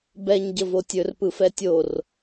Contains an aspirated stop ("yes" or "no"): no